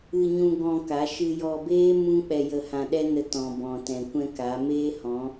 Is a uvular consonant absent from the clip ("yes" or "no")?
yes